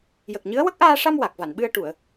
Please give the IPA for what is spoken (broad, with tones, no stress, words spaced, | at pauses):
jə˨˩k̚ɲɨ˧˥ə̯ wə˦˥k̚ʔaː˧ʂa˧m wa˨˩k̚va˨˩˨nɓɨ˧ə̯ ʈu˨˩˨ə̯